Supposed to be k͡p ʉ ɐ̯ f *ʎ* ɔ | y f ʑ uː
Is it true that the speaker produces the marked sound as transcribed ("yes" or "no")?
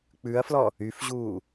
no